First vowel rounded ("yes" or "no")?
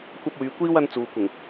no